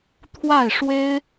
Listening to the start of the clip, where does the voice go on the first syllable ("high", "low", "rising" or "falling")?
falling